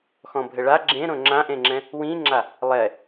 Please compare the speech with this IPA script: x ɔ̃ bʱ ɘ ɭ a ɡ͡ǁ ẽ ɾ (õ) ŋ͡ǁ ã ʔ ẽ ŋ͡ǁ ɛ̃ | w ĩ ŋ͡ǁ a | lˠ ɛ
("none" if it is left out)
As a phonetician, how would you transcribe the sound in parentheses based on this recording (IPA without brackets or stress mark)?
õ